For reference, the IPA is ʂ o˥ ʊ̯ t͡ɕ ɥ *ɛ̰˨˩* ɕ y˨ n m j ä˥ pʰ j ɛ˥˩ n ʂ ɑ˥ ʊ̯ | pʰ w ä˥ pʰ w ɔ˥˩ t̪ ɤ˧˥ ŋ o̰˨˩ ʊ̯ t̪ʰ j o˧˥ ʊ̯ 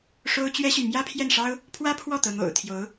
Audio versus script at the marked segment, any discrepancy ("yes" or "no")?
yes